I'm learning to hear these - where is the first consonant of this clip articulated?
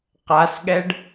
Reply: uvula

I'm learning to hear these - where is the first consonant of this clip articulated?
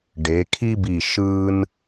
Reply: retroflex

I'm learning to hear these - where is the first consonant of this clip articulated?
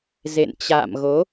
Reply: tongue tip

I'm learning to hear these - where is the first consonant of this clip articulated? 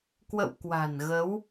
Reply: velum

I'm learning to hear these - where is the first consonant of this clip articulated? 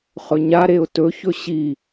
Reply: uvula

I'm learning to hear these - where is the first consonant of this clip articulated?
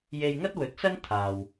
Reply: palate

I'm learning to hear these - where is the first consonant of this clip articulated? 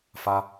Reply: lips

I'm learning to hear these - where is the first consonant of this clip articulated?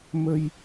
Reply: lips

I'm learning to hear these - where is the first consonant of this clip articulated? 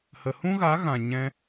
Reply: throat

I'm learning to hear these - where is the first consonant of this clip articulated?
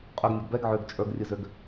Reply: uvula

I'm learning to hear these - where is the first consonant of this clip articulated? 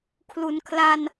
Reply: velum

